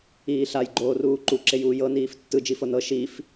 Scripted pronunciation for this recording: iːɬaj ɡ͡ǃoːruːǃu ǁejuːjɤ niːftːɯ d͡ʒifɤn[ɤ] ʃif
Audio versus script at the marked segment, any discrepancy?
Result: no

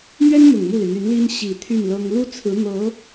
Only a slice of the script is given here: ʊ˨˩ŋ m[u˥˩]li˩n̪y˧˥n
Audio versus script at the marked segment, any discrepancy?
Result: no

